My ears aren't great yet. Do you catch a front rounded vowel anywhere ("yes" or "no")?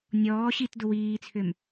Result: yes